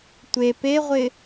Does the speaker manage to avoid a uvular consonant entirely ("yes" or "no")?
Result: no